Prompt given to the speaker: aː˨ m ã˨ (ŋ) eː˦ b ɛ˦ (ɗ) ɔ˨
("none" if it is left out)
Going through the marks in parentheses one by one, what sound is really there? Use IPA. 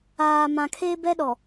kʰ, ɗ

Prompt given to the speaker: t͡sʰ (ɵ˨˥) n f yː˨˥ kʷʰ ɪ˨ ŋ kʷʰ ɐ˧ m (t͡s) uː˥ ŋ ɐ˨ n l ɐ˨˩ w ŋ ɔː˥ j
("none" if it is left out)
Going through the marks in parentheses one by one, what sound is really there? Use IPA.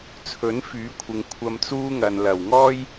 ɵ˨˥, t͡s

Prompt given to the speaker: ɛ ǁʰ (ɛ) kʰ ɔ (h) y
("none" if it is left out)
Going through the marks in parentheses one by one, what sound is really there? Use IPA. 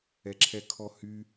ɛ, h

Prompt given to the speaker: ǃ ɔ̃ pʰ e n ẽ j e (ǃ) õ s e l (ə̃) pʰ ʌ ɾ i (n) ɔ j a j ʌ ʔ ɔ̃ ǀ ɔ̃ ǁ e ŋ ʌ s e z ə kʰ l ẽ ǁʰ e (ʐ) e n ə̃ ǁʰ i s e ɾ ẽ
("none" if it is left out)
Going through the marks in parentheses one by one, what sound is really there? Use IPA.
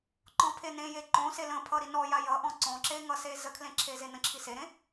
ǃ, ə̃, n, z

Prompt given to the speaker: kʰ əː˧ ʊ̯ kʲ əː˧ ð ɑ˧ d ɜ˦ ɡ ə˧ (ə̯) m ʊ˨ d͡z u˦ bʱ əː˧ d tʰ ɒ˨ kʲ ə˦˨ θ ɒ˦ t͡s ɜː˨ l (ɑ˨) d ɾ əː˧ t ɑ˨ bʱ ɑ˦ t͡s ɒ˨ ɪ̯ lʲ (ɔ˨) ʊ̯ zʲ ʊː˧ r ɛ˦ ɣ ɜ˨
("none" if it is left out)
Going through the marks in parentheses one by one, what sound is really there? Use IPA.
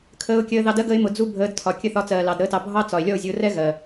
ɪ̯, ɑ˨, ɔ˦˨

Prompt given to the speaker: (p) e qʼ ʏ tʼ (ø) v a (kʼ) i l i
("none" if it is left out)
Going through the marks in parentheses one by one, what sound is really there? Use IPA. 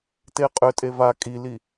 t, e, kʼ

